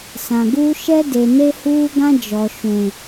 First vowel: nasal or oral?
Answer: nasal